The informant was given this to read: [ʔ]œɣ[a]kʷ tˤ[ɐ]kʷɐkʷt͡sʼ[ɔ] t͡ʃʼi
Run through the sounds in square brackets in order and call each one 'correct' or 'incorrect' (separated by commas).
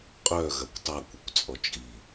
incorrect, incorrect, incorrect, correct